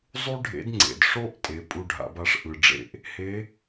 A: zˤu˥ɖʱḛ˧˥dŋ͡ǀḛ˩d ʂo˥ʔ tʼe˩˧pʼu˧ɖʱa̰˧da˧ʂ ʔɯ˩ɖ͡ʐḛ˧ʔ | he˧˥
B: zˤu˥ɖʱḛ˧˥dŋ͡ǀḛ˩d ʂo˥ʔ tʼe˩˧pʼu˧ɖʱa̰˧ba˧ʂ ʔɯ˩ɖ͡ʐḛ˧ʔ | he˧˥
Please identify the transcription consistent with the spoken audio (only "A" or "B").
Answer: B